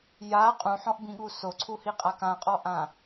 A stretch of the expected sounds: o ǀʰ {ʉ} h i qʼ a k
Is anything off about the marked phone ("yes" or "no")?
yes